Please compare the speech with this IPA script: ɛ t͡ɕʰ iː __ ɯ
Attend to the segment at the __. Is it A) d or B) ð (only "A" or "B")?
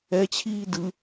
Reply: A